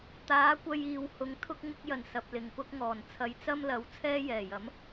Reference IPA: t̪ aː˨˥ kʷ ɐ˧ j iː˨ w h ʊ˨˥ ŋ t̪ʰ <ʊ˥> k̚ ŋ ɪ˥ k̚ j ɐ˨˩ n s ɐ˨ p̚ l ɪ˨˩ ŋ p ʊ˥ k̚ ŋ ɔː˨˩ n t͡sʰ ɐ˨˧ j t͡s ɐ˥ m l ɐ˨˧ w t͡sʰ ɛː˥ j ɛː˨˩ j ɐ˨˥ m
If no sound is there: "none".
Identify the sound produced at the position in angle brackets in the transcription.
ʊ˥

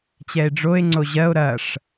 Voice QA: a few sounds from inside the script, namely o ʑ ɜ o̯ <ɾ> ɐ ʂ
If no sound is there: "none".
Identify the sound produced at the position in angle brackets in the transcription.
ɾ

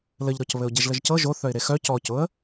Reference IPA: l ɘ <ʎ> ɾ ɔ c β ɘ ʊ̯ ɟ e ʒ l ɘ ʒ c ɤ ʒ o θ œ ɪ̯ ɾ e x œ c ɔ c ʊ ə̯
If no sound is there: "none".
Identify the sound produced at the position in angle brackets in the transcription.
ʎ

